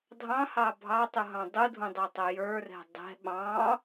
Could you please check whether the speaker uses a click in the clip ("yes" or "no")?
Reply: no